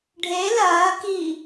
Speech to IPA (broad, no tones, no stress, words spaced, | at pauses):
ɖʱe lɐː ki